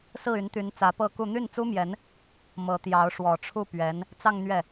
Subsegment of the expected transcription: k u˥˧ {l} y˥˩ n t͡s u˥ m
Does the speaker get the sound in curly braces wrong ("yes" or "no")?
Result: yes